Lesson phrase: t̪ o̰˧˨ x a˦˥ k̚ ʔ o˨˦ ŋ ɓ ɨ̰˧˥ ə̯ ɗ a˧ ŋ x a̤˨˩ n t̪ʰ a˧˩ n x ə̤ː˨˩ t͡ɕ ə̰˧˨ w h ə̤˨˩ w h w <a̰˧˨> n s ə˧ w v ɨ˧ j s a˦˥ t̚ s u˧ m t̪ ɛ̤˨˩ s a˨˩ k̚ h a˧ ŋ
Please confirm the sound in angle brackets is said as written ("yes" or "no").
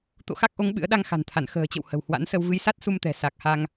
no